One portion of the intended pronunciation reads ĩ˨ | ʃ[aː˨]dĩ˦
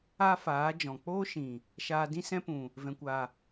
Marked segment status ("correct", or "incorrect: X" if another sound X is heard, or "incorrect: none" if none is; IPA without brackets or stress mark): incorrect: aː˧